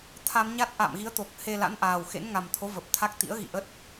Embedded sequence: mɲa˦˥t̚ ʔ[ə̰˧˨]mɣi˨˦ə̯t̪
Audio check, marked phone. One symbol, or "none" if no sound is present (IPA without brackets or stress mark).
a̰˧˨